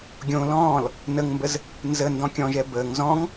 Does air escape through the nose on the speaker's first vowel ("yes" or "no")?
yes